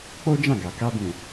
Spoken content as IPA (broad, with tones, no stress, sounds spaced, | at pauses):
k͡p o˦ d͡ʒ ã˦˨ ɡ a˨ k a˧ b ũ˨